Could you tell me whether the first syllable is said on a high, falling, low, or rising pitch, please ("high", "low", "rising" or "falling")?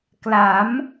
rising